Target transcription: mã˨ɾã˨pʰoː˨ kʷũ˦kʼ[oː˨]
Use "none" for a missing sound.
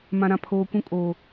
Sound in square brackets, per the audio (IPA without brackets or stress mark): oː˨